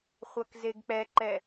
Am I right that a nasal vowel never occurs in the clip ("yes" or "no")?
yes